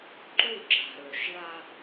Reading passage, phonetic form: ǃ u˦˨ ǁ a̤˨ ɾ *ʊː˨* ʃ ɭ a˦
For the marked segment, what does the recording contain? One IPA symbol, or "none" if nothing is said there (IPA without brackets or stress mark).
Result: ɵː˨